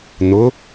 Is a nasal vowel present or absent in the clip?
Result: absent